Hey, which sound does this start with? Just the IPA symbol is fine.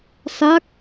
s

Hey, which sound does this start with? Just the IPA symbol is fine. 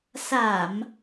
s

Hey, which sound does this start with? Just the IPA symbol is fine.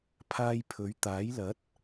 pʰ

